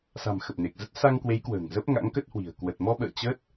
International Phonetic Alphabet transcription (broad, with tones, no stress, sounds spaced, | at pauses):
s a̤˨˩ m x ə˨˩ p̚ n e˨˩ k̚ z ə˦˥ t̚ s a˧ ŋ k w e˨˦ j k w ə̤ː˨˩ ŋ z ə˦˥ p̚ ŋ a̰˧˥ ŋ k ə˦˥ t̚ h w i̤˨˩ ə̯ k w ə˨˩ t̚ m ɔ˧ ɓ ə̰ː˧˨ t͡ɕ ə˦˥ t̚